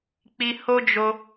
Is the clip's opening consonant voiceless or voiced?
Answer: voiceless